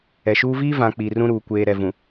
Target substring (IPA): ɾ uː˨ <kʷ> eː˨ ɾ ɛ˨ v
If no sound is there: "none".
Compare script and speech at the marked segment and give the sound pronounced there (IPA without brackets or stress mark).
kʷ